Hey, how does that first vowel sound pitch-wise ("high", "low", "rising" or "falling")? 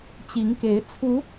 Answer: rising